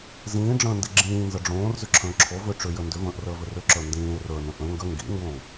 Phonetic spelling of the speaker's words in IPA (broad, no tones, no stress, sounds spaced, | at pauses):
z ĩː ɖ͡ʐ ə̃ː n d i ɡ͡ǁ ĩː n z ə ɖ͡ʐ õː r z ʏ ǁʰ ə̃ː ǁʰ o v ʏ ʈ͡ʂ ʏ j ə n d ʏ v ə̃ː ʔ r əː v ʏ r ʏ ǁ ə˞ n d ĩː e̯ r ə˞ n ə̃ ʔ ə̃ ŋ ɡ ə ŋ ɡ ḭ ŋ ɡ õː